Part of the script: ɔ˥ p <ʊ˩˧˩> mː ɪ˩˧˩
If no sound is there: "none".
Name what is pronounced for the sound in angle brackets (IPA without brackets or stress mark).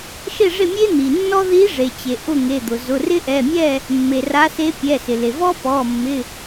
ɔ˩˧˩